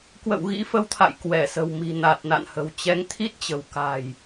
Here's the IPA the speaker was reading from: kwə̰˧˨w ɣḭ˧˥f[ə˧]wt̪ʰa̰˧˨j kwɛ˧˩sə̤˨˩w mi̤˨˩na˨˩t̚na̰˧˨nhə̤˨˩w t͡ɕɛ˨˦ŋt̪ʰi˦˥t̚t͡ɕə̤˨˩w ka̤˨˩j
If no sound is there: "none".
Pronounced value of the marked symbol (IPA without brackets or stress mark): ə˨˦